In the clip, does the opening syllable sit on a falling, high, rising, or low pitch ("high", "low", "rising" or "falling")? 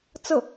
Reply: falling